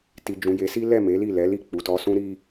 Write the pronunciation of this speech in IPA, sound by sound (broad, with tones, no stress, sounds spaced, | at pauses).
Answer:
t i˨ d͡ʒ ũ˨ j e˨˦ s i˦ l ɛ˦˨ m e˨˦ l i˦˨ l ɛ˨˦ l i˦˨ k͡p u˨ t ɔ˧ s ũ˦ ɾ i˦